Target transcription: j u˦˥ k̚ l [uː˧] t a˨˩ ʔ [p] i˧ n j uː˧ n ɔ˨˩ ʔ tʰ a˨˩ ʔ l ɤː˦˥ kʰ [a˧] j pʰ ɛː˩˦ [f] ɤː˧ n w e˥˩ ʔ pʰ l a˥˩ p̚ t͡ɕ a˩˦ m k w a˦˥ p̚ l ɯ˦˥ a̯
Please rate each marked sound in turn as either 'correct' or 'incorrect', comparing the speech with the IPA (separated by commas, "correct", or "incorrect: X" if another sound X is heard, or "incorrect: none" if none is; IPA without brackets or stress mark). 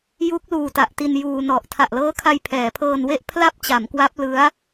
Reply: correct, incorrect: t, correct, incorrect: pʰ